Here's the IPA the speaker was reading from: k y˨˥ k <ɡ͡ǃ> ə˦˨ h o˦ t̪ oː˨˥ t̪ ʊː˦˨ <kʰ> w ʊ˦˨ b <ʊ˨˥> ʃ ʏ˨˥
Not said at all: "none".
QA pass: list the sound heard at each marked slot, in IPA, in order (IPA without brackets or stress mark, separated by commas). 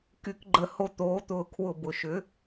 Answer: ɡ͡ǃ, kʰ, ʊ˨